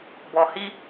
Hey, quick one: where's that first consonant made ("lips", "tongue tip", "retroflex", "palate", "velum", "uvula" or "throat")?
lips